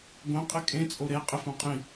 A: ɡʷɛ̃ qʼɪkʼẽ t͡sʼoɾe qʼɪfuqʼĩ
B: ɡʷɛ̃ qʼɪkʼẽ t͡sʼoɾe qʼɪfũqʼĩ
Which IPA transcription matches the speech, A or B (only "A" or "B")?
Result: B